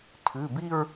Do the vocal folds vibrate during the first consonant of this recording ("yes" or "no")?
no